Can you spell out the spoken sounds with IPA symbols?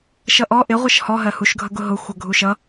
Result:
ʃʌʔɔ ʔɪ ʁʷʌʃhɔ ɦɜhuʃ ɡʱʌɡʊɦʊ xʷʌɡʱuʃʌ

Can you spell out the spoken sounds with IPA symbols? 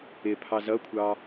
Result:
ɪpʰɑ zʌkʷʰɑ

